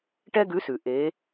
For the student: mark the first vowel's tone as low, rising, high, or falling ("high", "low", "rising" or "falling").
high